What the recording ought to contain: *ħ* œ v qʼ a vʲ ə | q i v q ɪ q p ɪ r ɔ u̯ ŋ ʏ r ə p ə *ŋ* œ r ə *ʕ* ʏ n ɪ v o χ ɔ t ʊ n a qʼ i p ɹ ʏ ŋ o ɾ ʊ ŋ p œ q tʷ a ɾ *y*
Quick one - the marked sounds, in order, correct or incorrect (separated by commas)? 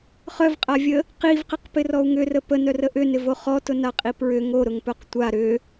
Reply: incorrect, incorrect, incorrect, incorrect